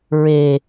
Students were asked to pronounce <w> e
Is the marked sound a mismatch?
yes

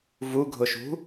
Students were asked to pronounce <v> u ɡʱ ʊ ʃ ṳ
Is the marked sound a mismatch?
no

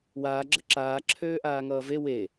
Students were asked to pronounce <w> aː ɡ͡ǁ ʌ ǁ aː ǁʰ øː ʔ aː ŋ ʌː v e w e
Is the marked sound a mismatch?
no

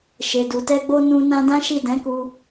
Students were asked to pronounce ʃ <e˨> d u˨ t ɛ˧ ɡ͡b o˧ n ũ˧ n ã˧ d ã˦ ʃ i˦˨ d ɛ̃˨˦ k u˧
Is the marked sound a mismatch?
no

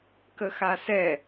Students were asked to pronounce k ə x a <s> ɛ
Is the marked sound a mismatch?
no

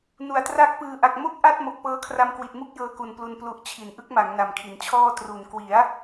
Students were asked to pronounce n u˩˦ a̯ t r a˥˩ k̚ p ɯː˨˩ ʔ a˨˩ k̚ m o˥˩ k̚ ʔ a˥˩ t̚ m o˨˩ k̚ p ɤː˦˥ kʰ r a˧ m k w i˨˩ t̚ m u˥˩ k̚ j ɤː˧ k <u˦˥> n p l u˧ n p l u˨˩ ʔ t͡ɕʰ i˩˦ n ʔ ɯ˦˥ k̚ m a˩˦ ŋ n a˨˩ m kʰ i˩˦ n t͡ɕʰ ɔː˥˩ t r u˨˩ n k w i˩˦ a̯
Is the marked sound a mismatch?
yes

